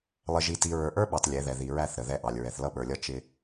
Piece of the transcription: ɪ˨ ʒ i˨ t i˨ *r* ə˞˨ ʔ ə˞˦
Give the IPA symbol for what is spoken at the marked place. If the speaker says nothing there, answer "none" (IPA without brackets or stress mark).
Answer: ɹ